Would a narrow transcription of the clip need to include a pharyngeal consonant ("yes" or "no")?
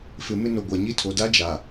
no